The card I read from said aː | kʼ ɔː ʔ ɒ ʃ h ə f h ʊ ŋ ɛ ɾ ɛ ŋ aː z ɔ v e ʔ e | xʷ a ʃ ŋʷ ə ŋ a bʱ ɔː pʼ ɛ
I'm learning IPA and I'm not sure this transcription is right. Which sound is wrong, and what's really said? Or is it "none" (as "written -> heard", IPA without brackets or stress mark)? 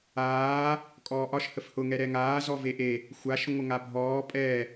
none